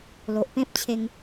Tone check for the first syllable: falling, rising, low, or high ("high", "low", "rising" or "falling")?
low